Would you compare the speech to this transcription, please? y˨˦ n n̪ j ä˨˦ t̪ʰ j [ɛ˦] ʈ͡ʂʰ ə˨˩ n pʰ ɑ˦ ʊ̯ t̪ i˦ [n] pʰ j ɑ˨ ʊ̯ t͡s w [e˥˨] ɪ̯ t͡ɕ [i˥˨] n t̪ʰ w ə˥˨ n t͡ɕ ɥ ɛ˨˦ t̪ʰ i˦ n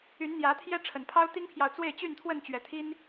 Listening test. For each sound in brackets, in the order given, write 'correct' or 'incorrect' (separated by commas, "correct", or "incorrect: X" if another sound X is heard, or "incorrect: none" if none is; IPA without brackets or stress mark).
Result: correct, incorrect: ŋ, correct, incorrect: y˥˨